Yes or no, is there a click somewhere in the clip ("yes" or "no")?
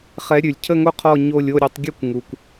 no